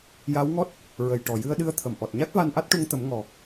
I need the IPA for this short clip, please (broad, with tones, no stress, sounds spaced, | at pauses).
j a˧˥ w ŋ ɔ˦˥ t̚ | ɹ ə˨˩ j ʈ ɔ˨˩ j ɨ˧ ə̯ ɗ ɨ˧˥ ə̯ t̪ʰ ə˨˩˨ m ʔ ɔ˨˩ t̚ ɲ a˦˥ k̚ v a˧ n ʔ a˦˥ t̚ ʈ u˧ ŋ t̪ ə˨˩˦ m ŋ ɔ˨˩